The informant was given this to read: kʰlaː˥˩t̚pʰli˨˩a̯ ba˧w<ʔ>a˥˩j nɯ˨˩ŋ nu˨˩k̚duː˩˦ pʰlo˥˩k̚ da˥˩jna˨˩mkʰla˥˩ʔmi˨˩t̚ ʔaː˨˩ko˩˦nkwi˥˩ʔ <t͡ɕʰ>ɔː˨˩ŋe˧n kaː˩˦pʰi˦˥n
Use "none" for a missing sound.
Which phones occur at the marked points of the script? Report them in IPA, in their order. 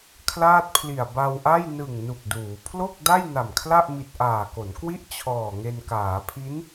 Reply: ʔ, t͡ɕʰ

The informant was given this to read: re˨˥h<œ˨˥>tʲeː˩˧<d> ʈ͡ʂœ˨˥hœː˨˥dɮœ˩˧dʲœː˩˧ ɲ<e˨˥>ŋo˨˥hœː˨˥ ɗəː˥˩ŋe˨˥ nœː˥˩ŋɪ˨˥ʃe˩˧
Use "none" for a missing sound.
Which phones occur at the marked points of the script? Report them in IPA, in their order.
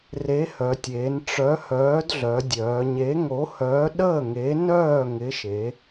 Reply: œ˩˧, n, e˨˥

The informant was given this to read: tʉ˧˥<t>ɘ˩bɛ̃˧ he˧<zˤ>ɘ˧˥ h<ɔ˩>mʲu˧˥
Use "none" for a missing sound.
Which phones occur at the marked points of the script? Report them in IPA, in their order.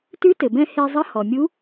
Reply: t, zˤ, ɔ˩

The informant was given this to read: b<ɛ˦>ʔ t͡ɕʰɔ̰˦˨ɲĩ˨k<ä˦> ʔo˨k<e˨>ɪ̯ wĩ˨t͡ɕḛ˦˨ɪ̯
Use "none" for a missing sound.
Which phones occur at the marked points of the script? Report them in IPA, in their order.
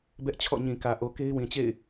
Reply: ɛ˦, ä˨, e˦

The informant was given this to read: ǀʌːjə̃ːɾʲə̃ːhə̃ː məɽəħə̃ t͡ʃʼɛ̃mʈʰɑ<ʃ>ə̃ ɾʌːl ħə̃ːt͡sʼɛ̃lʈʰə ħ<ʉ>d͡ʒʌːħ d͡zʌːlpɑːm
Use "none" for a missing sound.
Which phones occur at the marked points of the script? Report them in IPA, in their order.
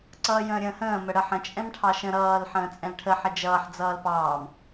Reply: ʃ, ə

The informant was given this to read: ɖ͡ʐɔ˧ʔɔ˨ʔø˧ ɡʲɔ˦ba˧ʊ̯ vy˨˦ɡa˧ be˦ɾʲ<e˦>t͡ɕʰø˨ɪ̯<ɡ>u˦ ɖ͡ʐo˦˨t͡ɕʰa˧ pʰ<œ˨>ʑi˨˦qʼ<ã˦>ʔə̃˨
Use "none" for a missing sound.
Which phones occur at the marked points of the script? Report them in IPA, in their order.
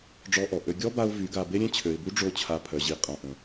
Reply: ẽ˦, b, œ˨, ã˨

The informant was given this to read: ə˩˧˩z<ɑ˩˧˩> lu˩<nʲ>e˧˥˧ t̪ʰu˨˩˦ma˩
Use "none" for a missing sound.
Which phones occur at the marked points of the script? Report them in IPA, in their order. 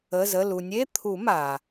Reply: ə˩˧˩, nʲ

